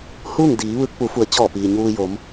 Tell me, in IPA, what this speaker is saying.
h uː˥˨ ŋ d iː˩˧ ʋ ɯː˧ k̚ p u˩˧ f u˩˧ ə̯ t͡ɕ ɔː˧˩ p iː˩ ɲ uː˧ j o˩˧ m

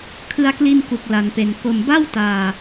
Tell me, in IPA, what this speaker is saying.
kʰ ɯ˧ a̯ k l i˧ n k u˨˩ k̚ l a˨˩ n p e˨˩ n k o˨˩ m b a˥˩ w t aː˧

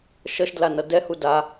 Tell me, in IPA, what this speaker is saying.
ʃ ʌ ʃ d l a n ʌ d ɛ h u d a

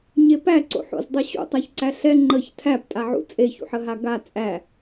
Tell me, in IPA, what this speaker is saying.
ɲ e p æ ǀ o̰ ħ o̰ z dˤ ɤ ɕ ṵ tˤ a ç ǀ æ ɬ ɛ ŋ͡ǃ ə ç tʰ æ p tʼ a ʕ ṵ t͡sʼ e ç ṵ ħ ə ɦ a ɡ a t͡sʼ æ

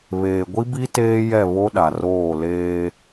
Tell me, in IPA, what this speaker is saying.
β eː˨ ɡʷ i˦ b i˦ t eː˦ j ɛ˦˨ β o˦ ɗ a˨ r oː˦˨ l eː˦

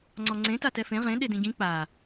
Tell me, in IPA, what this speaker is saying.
ŋ͡ǀ ɔ ŋ͡ǀ ẽ t a t ɛ f ẽ ʁ ẽ ɗ e d ĩ ɟ ĩ k͡p a

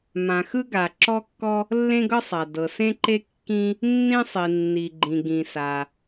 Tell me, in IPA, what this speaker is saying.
m ã˩ x ɯ˥ ɡ a˩ ǁ ɔ˥ kː ɔ˥ | lː ẽ˥ ɡ ɤ˥ sˤ a˩ d ɤ˩ s ẽ˥ ǃ e˥ kː ĩ˥ | nː ĩ˥ sˤ i˩ nː i˩ ɡ͡ǃ ĩ˩ ɡ ĩ˩ s a˩

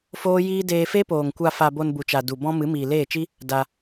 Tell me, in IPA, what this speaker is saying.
f oː˦ j iː˦ d eː˧ f e˦ p oː˨ ŋ kʷ a˧ f a˧ b o˧ n b u˨ t͡ʃ a˨ d u˨ b ɔ̃˦ m ɨ˨˦ m iː˨ l eː˦˨ t͡ʃ i˦ | d a˧

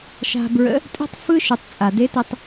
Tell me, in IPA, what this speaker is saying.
ʃ a̤˧ b ɹ ə̰˧˥ | tʼ e̤˥ tˤ f ɯ˥ ʃ ɯ˩˧ tˤ t͡sʼ a˩ d e˧˥ t e˧ tˤ

